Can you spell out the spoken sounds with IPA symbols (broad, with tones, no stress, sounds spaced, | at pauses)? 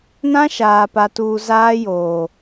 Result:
n ã˦ ʃ aː˨ p a˨ t uː˨ z aː˦ j oː˨